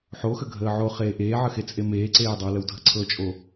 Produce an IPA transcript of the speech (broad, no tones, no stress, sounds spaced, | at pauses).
ħ o x ə ɡʱ əː ʕ o χ eː ʔ eː ʕ ə x e t͡sʼ e m eː ǀ eː dˤ ə w l ə w dʱ ə ǀʰ ɤ t͡ʃʼ o